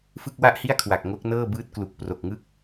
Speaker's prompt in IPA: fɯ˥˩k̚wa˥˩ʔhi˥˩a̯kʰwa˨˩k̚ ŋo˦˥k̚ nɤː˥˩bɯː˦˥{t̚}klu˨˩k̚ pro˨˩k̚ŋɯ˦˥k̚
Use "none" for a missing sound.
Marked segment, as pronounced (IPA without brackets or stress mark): t̚